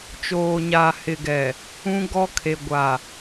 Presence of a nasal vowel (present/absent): present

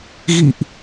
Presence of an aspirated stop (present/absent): absent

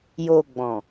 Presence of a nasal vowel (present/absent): present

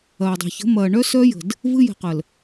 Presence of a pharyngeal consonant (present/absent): absent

